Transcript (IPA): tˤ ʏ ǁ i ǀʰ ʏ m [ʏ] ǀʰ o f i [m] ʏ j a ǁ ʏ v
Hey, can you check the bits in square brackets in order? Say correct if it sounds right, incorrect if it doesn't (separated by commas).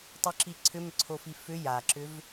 correct, incorrect